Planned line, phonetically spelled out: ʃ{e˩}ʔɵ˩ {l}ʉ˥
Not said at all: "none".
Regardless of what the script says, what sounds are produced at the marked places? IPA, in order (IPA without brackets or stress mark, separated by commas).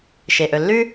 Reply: e˩, lː